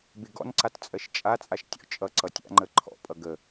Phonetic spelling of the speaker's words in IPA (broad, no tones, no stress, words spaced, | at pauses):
bɪɡɔ̰nǀat t͡sʼɜʃt͡ʃʼat͡sʼaʃ tʲɔ̰t͡ʃʼʌǀʌ tʲa̰ŋ͡ǃə ǃʰɔ̰pʼʌ ɡə